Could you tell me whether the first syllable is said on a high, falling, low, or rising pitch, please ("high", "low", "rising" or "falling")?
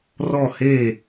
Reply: falling